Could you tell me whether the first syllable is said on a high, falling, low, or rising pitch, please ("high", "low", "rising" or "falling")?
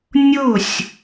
falling